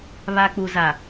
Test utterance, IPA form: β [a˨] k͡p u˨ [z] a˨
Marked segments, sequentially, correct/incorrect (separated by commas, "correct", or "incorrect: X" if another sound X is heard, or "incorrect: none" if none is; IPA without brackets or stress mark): correct, correct